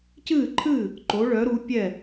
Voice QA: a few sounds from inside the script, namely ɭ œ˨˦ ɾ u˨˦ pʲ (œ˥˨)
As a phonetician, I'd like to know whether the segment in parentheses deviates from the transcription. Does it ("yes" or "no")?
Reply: yes